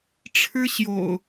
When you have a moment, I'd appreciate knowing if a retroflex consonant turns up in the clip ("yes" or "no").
yes